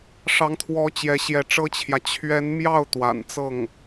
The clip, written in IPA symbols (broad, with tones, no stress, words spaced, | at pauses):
ʂɑ˧˥ŋt̪ʰwɔ˧˥ t͡ɕjɛ˧˥ɕjɛ˧˥ʈ͡ʂɤ˥t͡ɕʰjä˨ t͡ɕʰɥɛ˧˥nmjɑ˥˩ʊ̯ t̪wa̰˨˩nt͡sɤ˥˩ŋ